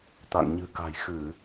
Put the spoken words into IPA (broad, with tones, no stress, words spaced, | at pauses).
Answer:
t̪a̰˧˨ŋɲɨ̤˨˩ka̤˨˩j xɨ˧˩˨